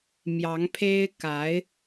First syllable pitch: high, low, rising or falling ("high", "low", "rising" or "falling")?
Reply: rising